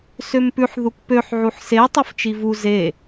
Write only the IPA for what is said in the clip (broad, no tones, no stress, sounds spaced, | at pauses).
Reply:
s ø m p ʉ ħ ð u k p ø ħ ʕ u ħ s e tˤ œ f t͡ʃ i v u z e